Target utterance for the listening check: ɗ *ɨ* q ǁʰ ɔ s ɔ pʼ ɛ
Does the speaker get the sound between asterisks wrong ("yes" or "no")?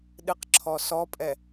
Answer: no